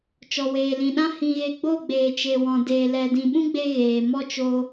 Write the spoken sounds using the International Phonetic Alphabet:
t͡ʃɔ˨weː˨lĩ˨ɗã˦ hĩ˧ɣe˧ ɡ͡bo˦˨ɡ͡beː˨t͡ʃe˨ wɔ̃˨deː˨lɛ˨ dĩ˨ɓũ˦ɡ͡be˧ ɣeː˨ mɔ˦t͡ʃo˧

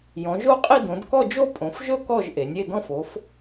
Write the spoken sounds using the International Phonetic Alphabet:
jɔ̃˩˧ʒo˥˧qʼi˥˧ dõ˩˧dkɔ˥˧d͡ʒo˥˧ pʼõ˩˧fʒɵ˥˧ kɔ˥˧ʒʔe˩˧nʲ e˥˧dɔ̃˥˧f o˩˧f

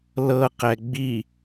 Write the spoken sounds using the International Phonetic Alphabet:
lɤ qɛɡ͡bi

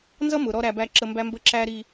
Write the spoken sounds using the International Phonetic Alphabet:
nzʌ˦ mʊ˨ɾɔ˦ ɾæ˨ bæ˦ǁə˦ mbæ˦mbə˦ǁæ˦ ɾi˦

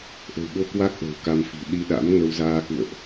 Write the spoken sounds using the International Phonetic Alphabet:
ʔə̤˨˩wɓo˧kwa˦˥k̚ ʔə̤ː˨˩wka˧mfi̤˨˩ ɗi˧ɗa̰˧˥mŋə˧w zaː˧kṵ˧˨ə̯ʔ

